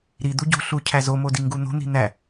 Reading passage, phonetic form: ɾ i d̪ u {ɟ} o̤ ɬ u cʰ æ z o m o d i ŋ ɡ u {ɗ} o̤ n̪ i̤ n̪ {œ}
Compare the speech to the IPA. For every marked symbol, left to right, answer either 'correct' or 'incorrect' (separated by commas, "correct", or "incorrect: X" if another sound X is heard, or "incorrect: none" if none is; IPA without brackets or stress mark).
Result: correct, incorrect: n̪, incorrect: æ